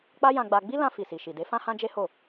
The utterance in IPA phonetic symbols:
k͡p a˦ j ã˧ ɡ͡b a˧ ɡ͡b i˦ l ã˧ f i˨ s i˨ ʃ i˨ d e˨˦ f ã˦ h ã˦ d͡ʒ e˦ h o˦˨

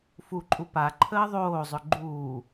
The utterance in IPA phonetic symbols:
f u ǃʼ u p a ǃʰ əː ðˤ oː zˤ ʏ ɡ͡ǃ uː

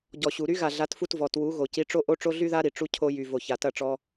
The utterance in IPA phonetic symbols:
ɟ ɔ˨ ɕ u˨ ɾ y˦ ɣ a˨ ɮ a˨˦ t f u˧ t v ɔ˨ t w u˨˦ ɣ o˨ c i˧ ʈ͡ʂ o˦ ʔ o˦ ʈ͡ʂ o˦ ɮ y˦ ð a˦ ɾ i˨ ʈ͡ʂ u˦ cʰ o˧ j y˨ v o˨ ç a˨ t ɐ˦˨ ʈ͡ʂ ɔ˧

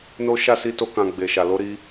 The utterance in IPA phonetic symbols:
n o˦ ʃ a˦˨ s i˧ t o˧ k ã˨ ɡ͡b e˨ ʃ a˨ l o˨˦ ɾ i˧

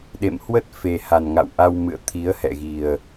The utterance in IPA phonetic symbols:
ɗ ḛ˧˨ m h w ə˦˥ t̚ f e˨˩ h a˨˩ n ŋ a̰˧˨ w ʔ a˧ w m ɨ̰˧˨ ə̯ t̪ʰ i˨˦ ə̯ h ɛ̰˧˨ ɣ i˨˩ ə̯

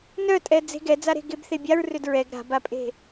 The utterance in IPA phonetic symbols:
n œ tʼ ɛ d͡z e̤ ɡ ɛ d͡z a ɾ e̤ ɡ e b θ e bʲ a ɹ r ʏ d ɹ ɛ ɡ ɾ a̤ b a pʼ e̤

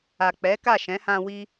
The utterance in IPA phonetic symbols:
a˨ k͡p ɛ˨˦ k a˦˨ ʃ ɛ̃˨˦ h ã˧ w i˦

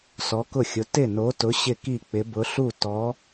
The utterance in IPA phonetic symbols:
s ɔ˨˥ k ʊ˥˩ xʲ ʊ˨˥ t ɪ˥˩ n o˨˥ t ʊ˨˥ ɕ ɪ˥˩ k i˥˩ k͡p ɪ˨˥ b ʊ˨˥ ɬ u˥˩ t ɔ˨˥

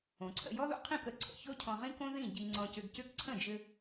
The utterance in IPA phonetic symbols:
õ˩ ǀʰ ə̰˥˩ j ɔ˥ ð o̰˥ qʰ ĩ˥˩ k ə˩ ǀʰ ə̰˩ ç o˥ cʰ ɔ̃˧ ʁ ĩ˥ k õ˥ ð ĩ˥˩ ɟ i˧ ŋ͡ǀ ɔ̃˧ c ʏ˧ ɡ c ʏ˥˩ k ǀʰ ə̃˥˩ d͡ʒ ʏ˧

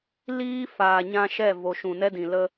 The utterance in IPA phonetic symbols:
l iː˦ f aː˨ ɲ ã˧ ʃ ɛ˦˨ v o˨ ʃ ũ˨ n ɛ˦ d ĩ˨ l ə˦

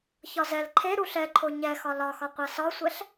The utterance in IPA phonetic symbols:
ç ɒ z ɛ l ǃʰ e ɾ u ɬ ɛ ǃʰ o ɲ ɛ x ɒ l ɒ x ɒ qʷ a s ɒ sʷ ɛ ɬ

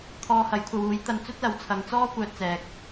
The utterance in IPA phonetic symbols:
t̪ʰ ɔː˧ h ɐ˨˥ j kʷʰ ɐ˨˧ w uː˨˥ j t̪ ɐ˧ n t͡s ɵ˥ t̚ l ɐ˨˧ w t͡sʰ ɐ˨˧ ŋ t͡s ɔː˥ kʷ œː˧ t̚ t͡s ɛː˨ k̚

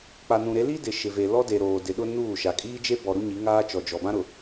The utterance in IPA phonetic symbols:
k͡p a˨ n ũ˨ ɾ e˨˦ l i˦ d ɪ˨ ʃ ɪ˨ v e˨ l ɔ˦ d e˨ ɾ oː˨ d ɪ˨ ɗ ʊ˦ n uː˦˨ ʃ a˨ kʼ iː˦ d͡ʒ e˦ b ɔ˨ ɾ u˦ ɲ i˨˦ ŋ aː˦ t͡ʃ ɔ˨ d͡ʒ ɔ˨ b ã˦ ɾ ʊ˨

